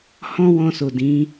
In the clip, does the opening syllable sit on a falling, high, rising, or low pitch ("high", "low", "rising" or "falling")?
high